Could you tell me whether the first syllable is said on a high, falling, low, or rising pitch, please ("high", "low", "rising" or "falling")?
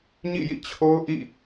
falling